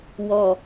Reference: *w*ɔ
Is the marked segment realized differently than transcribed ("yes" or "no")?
no